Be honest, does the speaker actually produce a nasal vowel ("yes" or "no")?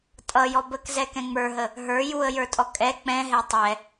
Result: yes